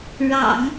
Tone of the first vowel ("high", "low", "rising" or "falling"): low